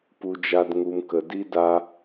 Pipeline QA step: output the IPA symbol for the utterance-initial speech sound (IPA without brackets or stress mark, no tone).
p